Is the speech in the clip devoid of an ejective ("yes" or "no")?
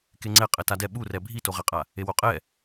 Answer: no